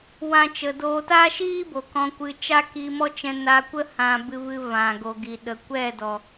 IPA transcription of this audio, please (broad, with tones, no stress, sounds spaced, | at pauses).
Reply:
w ã˦ t͡ʃ ə˧ d oː˧ t aː˦ ʃ iː˦ b o˨ k ɔ̃˧ kʷ ɨ˧ t͡ʃ a˦ k iː˧ m ɔ˦ t͡ʃ ɛ̃˧ n a˧ kʷ ə˦ h ã˧ b ɨ˧ v ɨ˧ v ã˨ ɡ o˨ ɡ i˨ ɗ ə˨ kʷ ɛ˦˨ d ɔ˨